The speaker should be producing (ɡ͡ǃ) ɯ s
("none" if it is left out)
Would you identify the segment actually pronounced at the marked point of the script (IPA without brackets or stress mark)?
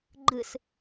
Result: ɡ͡ǃ